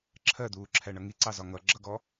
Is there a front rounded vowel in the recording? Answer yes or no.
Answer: no